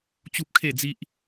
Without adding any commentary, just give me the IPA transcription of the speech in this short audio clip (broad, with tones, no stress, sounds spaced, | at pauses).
t͡ɕ u˦ p̚ kʰ e˥˧ d͡z i˦ ʔ